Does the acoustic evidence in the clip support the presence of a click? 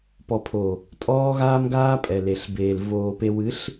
no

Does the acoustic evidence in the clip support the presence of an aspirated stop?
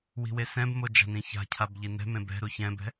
yes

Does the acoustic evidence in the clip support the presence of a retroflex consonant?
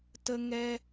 no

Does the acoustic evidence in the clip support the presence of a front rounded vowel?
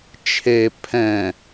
no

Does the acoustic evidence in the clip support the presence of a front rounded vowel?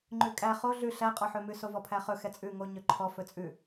yes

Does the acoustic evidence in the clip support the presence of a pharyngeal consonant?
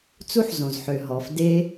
yes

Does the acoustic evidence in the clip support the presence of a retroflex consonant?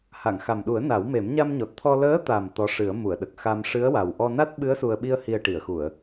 yes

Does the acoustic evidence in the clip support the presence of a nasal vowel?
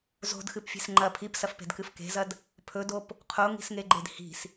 no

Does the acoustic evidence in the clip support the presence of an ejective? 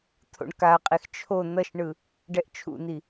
yes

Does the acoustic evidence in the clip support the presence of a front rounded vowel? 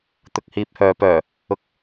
yes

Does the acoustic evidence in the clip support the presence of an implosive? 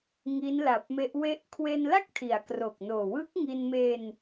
no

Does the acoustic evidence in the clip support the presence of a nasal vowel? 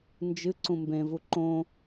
yes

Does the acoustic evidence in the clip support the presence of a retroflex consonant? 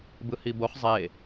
no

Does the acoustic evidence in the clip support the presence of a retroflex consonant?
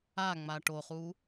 yes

